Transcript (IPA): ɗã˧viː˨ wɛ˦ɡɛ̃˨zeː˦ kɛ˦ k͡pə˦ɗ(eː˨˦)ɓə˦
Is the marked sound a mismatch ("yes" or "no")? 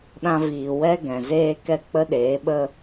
no